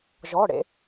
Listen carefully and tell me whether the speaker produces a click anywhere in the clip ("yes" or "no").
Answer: no